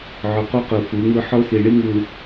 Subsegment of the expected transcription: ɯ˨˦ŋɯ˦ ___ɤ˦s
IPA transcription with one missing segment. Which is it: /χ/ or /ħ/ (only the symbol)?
ħ